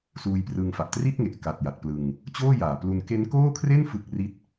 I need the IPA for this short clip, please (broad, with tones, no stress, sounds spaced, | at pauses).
s uː˧ j p r ɯ˧ ŋ f a˨˩ ʔ t r i˥˩ t̚ ŋ e˨˩ ʔ k a˨˩ t̚ j a˨˩ t̚ p l ɯ˧ ŋ | t͡ɕ oː˥˩ j aː˨˩ p l u˧ n k e˦˥ n k oː˥˩ kʰ r e˥˩ n f ɯ˦˥ k̚ r i˥˩ t̚